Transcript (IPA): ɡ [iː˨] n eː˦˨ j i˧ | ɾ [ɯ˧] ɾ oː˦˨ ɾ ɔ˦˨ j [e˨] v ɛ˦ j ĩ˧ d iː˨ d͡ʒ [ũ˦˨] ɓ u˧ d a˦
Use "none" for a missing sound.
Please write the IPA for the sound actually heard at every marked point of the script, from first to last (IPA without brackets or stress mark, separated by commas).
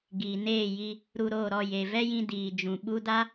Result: iː˨, u˧, e˨, ũ˨